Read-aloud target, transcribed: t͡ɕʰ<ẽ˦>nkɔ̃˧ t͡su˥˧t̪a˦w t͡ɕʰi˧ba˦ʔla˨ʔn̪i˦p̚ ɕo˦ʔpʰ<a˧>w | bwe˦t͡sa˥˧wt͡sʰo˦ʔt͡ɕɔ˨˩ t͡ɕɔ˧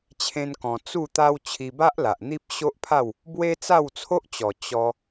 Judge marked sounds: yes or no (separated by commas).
yes, no